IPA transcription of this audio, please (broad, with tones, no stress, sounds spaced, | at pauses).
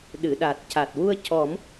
ɗ ɨ˨˩˨ ɗ a˨˩ t̚ c a˨˩ t̚ w u˧ ə̯ c ɔ˨˩˦ m